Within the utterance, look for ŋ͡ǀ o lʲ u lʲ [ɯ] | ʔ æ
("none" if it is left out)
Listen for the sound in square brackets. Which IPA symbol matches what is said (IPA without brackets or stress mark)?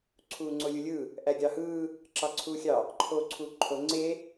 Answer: ɯ